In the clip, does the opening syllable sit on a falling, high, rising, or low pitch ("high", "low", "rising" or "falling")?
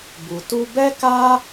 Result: low